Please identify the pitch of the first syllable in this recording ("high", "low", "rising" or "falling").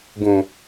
low